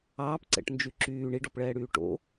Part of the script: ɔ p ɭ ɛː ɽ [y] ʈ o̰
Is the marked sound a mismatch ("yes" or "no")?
yes